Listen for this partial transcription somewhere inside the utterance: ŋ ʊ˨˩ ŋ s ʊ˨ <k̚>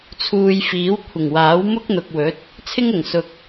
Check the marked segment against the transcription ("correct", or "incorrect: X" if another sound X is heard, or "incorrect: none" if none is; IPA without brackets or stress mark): correct